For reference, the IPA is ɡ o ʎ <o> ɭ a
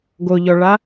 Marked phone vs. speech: incorrect: ɔ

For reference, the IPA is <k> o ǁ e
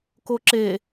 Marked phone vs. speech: correct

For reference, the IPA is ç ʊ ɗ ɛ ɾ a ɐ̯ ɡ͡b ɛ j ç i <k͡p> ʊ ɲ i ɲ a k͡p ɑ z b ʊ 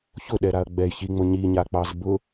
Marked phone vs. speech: incorrect: ŋ͡m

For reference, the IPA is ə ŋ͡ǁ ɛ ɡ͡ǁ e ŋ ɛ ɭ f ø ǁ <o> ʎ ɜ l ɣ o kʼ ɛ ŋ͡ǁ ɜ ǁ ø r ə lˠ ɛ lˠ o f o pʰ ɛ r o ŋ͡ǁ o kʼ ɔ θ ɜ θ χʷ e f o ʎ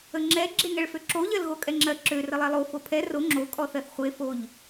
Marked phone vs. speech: correct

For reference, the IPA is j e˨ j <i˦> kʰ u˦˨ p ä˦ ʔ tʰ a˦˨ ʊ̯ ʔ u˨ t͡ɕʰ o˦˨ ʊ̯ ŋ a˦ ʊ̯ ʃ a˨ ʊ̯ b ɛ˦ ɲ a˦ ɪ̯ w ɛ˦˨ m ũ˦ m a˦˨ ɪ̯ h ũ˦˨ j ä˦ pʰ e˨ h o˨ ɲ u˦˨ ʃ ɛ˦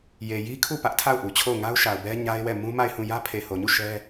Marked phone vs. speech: correct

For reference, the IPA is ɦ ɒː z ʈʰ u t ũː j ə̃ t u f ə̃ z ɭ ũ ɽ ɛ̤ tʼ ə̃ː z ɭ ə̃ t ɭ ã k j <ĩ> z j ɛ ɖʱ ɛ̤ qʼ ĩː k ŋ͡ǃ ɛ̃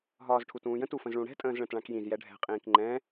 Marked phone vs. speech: correct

